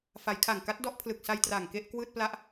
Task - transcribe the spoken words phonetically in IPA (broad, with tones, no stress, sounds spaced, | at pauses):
f a˩˦ j kʰ a˨˩ ŋ k a˦˥ t̚ d ɔ˥˩ ʔ pʰ l ɯ˨˩ k̚ s a˧ j t r aː˨˩ ŋ k e˥˩ ʔ k w ɯː˥˩ t̚ p l a˥˩ ʔ